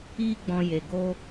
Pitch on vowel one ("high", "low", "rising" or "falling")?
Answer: high